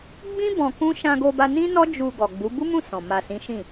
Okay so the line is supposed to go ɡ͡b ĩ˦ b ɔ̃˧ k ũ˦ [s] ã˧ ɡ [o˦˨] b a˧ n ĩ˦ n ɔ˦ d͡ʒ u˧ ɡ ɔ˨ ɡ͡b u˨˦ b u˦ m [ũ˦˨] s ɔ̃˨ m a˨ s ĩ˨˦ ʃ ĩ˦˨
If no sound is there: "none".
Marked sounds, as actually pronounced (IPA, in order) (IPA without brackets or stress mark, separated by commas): ʃ, o˧, ũ˦˨